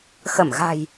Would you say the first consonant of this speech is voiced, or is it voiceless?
voiceless